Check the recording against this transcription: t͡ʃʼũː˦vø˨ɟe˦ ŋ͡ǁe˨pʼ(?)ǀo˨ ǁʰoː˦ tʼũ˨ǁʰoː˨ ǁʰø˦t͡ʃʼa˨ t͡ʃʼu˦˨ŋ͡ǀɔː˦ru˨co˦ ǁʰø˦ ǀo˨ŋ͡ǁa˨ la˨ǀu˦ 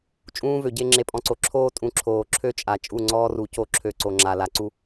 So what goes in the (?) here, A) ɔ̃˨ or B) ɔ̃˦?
A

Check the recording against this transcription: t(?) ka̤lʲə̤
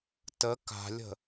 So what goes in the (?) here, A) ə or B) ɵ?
A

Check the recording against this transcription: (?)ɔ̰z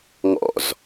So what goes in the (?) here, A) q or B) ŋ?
B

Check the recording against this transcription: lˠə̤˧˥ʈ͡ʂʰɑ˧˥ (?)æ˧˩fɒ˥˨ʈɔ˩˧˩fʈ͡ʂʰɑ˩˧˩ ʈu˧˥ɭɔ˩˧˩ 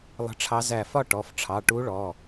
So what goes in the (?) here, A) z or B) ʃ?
A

